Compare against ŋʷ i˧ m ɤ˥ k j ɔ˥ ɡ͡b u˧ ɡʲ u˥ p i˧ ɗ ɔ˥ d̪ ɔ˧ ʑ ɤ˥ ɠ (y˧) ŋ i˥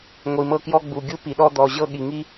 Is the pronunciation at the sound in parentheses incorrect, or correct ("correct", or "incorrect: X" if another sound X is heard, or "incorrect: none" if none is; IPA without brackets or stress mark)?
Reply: incorrect: i˧